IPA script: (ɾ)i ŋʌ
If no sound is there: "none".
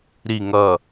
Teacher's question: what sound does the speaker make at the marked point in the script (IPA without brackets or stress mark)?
ɾ